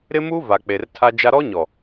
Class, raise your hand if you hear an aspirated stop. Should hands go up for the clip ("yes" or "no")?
yes